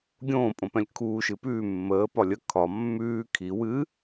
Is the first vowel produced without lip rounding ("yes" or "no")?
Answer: no